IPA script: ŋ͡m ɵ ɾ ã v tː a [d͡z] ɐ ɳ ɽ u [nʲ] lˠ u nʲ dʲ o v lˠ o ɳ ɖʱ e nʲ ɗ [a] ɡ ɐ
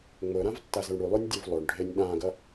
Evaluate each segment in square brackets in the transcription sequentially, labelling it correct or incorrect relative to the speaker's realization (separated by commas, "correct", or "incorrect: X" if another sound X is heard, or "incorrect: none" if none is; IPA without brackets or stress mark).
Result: incorrect: z, incorrect: none, incorrect: ã